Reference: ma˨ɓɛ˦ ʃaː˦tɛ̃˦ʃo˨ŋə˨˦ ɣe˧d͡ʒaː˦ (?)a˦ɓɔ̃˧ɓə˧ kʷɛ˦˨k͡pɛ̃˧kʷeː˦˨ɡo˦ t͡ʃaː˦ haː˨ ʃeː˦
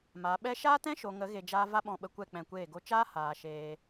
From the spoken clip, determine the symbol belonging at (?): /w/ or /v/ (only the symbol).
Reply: v